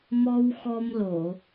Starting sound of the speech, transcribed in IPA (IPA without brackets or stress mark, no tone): m